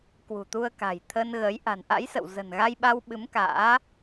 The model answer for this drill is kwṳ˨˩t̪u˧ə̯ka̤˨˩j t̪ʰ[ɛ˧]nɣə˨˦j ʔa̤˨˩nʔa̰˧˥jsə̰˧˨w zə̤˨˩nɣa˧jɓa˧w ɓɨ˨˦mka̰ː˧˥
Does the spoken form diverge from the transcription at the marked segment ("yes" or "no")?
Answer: yes